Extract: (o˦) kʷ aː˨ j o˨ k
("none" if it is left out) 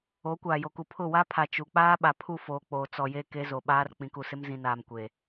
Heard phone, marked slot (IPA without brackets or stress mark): o˨˦